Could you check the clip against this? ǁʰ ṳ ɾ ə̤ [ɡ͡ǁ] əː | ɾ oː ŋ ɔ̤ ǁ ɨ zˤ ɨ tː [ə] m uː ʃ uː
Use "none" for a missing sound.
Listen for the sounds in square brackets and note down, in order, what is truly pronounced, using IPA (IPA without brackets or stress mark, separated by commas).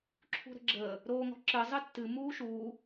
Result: ɡ͡ǁ, ɨ